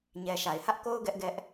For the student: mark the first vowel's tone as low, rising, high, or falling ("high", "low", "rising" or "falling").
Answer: low